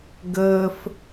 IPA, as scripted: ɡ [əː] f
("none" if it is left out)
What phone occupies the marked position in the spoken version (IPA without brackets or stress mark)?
əː